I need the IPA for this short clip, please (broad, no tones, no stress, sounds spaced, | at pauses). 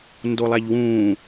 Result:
n d o lˠ æ ʎ w ũː